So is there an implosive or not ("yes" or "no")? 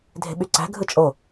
yes